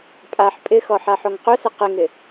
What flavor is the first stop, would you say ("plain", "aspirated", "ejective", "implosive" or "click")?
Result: ejective